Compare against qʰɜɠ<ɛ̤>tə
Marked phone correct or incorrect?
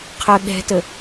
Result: correct